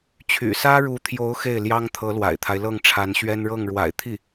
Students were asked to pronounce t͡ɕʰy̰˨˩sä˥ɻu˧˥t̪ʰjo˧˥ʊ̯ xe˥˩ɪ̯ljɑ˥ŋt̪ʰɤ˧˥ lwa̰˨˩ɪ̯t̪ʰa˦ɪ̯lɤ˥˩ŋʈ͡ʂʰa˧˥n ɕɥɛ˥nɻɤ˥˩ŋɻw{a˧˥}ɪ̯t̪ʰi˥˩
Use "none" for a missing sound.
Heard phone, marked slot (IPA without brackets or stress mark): a̰˨˩